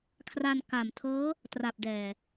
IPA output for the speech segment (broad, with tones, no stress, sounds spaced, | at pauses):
kʰ r a˧ n k a˨˩ m tʰ ɤː˦˥ | t r a˨˩ p̚ d ɛː˨˩